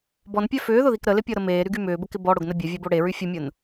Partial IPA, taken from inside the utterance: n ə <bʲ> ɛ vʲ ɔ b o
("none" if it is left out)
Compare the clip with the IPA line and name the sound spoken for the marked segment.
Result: bʲ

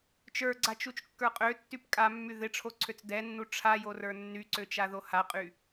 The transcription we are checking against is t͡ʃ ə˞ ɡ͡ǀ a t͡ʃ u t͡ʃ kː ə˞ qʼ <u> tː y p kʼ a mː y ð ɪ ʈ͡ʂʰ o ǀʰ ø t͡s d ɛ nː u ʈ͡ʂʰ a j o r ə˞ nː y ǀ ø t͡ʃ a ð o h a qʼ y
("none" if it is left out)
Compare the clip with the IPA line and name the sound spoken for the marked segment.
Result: ø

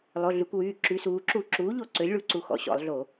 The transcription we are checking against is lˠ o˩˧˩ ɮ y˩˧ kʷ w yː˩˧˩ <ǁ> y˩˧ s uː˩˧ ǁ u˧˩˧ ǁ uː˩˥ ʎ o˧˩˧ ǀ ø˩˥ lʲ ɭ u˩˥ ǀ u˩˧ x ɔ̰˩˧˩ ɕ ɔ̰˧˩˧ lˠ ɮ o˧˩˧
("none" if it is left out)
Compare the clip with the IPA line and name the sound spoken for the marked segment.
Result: ǁ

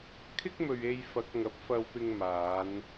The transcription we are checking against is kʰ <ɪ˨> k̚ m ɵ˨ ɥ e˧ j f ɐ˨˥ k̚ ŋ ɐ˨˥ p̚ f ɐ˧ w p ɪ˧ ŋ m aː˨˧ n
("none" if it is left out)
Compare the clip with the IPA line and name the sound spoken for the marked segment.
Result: ɪ˥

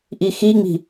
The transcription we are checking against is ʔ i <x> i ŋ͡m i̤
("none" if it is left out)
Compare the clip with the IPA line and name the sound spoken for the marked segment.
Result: x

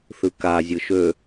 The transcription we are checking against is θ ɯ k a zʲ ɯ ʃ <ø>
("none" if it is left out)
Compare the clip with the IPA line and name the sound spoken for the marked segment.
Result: ø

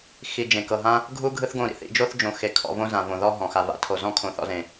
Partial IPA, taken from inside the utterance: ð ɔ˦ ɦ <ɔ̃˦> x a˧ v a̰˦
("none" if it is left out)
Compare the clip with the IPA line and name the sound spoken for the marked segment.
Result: ɔ̃˨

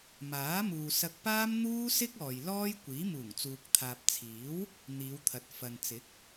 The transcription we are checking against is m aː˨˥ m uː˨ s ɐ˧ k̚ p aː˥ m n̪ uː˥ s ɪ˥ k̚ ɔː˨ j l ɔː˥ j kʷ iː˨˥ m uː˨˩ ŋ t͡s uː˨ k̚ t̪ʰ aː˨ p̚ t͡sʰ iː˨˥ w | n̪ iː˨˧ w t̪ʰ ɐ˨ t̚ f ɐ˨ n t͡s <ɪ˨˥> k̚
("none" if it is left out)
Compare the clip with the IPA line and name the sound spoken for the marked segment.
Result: ɪ˨˥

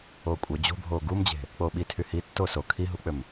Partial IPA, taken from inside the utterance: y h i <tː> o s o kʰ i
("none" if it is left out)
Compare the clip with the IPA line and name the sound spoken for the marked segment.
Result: tː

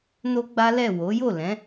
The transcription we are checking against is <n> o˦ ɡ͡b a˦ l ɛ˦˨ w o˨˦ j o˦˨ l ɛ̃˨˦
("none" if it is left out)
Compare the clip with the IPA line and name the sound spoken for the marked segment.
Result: n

